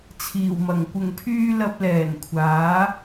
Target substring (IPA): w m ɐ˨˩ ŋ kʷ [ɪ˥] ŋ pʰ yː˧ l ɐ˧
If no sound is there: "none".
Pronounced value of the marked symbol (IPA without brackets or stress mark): ɪ˨˩